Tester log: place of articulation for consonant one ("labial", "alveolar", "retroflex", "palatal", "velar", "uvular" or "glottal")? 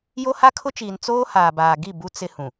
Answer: palatal